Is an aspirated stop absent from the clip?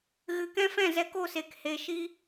yes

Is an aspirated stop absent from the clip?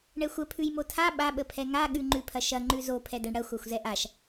no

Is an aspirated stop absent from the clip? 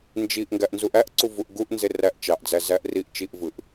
yes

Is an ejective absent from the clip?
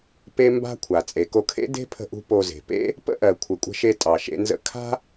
no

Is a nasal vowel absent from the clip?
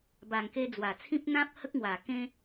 no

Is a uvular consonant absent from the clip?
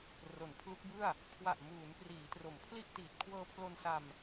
yes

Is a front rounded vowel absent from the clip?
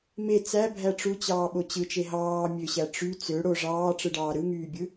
no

